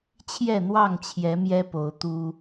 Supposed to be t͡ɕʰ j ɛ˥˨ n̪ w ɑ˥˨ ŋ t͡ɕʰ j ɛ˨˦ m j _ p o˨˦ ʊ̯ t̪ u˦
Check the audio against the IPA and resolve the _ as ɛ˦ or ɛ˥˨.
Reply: ɛ˦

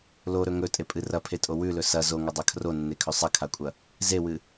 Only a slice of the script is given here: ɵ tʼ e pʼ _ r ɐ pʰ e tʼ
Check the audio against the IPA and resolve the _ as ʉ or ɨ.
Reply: ɨ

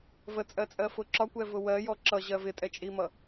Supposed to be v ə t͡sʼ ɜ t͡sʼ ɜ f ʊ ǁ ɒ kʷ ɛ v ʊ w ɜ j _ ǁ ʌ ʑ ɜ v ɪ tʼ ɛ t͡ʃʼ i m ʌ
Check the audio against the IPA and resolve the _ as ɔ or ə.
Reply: ɔ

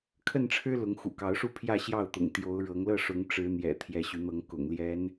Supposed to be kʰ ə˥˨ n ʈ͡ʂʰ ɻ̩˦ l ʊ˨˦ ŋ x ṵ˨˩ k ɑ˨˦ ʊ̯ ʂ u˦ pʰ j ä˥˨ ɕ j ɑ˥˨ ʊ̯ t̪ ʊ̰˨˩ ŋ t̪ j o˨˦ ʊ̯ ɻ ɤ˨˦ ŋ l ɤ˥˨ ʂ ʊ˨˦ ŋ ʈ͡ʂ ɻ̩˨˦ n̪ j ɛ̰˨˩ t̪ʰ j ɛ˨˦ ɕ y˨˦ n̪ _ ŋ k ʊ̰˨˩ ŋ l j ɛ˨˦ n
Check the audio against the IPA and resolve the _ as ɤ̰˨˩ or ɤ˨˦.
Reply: ɤ˨˦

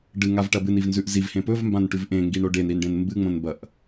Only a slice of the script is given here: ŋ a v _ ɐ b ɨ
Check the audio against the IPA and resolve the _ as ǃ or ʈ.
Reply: ʈ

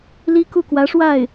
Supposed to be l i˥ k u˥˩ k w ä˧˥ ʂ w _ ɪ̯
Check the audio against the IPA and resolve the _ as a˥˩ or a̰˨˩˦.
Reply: a˥˩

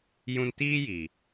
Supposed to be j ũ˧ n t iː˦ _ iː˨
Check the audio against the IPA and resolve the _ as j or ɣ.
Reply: j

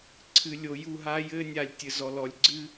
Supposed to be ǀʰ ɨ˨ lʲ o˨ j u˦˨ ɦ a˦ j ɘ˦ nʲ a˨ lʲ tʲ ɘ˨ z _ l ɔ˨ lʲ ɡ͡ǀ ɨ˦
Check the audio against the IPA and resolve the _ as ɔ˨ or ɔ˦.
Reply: ɔ˨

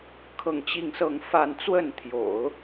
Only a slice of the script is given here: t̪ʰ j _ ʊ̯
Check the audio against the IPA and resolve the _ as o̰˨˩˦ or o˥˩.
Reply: o̰˨˩˦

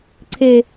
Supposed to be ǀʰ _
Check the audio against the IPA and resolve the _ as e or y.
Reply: e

